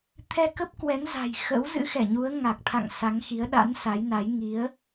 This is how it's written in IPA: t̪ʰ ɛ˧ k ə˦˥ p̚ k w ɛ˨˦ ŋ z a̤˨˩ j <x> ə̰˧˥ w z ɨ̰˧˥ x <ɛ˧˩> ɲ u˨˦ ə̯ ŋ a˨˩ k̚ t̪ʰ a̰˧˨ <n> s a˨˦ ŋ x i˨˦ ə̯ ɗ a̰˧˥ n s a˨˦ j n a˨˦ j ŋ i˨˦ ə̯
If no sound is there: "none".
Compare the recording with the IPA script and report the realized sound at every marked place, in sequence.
x, ɛ˧˩, ŋ

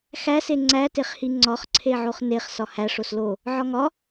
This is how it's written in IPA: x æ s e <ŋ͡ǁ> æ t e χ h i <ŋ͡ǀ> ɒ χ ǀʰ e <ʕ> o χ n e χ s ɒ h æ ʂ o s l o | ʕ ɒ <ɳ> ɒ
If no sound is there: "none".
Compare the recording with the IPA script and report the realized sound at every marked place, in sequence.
ŋ͡ǀ, ŋ͡ǀ, ʕ, ŋ

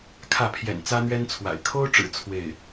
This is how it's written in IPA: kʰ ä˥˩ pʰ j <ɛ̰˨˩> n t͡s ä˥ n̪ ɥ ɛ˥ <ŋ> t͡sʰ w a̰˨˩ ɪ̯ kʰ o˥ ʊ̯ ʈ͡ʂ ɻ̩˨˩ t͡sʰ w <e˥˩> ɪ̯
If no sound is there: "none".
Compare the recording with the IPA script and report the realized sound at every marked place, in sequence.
ɛ̰˨˩, n, e˥˩

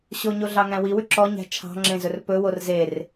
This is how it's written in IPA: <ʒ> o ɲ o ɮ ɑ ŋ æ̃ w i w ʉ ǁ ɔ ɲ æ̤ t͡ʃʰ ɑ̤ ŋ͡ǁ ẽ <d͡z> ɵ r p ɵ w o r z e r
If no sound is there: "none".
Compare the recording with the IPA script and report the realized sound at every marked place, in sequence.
ɕ, z

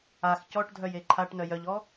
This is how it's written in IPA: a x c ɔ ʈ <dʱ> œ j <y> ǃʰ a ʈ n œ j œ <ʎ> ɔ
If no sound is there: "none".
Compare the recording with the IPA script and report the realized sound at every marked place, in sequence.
dʱ, e, ʎ

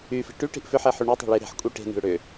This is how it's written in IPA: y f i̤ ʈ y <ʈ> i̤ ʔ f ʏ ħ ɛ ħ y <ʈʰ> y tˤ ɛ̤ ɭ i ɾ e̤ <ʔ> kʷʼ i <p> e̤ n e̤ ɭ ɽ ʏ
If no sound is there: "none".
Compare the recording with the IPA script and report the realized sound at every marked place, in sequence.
ʈ, ɳ, ħ, ʈ

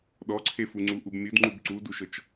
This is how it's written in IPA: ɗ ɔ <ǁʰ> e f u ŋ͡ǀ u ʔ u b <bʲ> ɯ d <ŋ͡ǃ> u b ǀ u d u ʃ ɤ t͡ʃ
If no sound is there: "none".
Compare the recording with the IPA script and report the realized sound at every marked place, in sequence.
ǀʰ, mʲ, ŋ͡ǃ

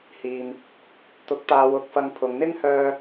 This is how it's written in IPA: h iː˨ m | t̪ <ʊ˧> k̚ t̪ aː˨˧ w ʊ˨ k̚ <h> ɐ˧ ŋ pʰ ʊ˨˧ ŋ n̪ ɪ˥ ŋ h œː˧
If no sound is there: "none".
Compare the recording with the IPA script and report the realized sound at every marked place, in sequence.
ʊ˨˥, f

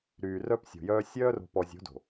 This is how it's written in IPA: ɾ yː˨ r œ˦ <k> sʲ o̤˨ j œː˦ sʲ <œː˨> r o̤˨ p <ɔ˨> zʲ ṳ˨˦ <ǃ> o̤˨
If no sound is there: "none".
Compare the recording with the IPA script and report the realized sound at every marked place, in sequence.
p, œː˦, ɔ˨, d

